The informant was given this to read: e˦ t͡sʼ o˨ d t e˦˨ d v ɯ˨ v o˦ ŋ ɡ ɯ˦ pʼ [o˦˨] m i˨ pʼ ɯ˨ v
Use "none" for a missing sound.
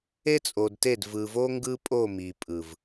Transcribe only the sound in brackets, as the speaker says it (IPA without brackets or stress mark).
o˦˨